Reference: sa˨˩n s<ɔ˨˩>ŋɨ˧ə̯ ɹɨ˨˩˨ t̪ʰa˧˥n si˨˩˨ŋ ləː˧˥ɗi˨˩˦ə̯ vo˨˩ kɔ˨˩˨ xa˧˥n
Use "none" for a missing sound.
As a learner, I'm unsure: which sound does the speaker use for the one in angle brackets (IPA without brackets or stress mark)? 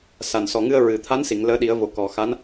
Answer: ɔ˨˩